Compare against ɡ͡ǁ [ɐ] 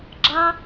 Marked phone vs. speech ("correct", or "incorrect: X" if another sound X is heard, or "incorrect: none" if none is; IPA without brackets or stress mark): incorrect: ɑ